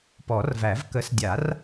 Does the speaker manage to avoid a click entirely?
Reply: yes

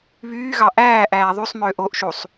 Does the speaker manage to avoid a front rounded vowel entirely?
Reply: no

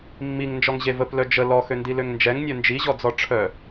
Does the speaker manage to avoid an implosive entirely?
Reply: yes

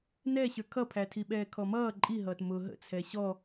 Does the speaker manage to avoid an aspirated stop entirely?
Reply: no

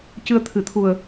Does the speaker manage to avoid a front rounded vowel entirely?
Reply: yes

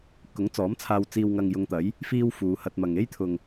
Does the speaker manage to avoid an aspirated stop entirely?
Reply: no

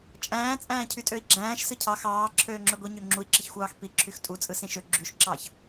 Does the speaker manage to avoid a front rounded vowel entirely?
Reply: no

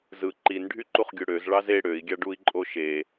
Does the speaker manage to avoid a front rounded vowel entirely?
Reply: no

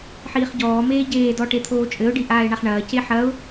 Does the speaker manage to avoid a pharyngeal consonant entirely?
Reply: no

